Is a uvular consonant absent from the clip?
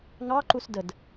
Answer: yes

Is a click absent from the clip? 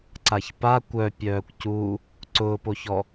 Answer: no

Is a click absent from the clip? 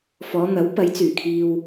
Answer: yes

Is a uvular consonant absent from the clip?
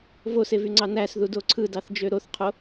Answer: no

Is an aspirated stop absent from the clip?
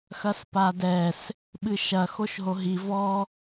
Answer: yes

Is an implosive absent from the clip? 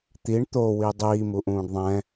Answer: yes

